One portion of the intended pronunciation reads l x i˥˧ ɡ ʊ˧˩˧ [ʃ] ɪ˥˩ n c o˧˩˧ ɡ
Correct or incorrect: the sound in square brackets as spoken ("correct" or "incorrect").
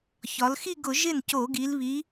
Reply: incorrect